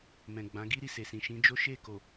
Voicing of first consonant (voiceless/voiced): voiced